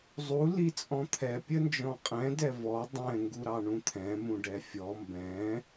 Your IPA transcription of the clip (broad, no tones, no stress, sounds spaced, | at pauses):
zˤ u l i t͡sʼ ɔ̃ t̪ʰ ɛ pʲ ə n d͡ʒ ɔ̃ qʼ ɛ̃ d ɛ v ɔ dˤ ɛ̃ ŋ ɡ u ɾ ɑ ɳ ũ t̪ʰ ɛ̃ m ũ ɖ ɛ fʲ ɔ m b ɛ̃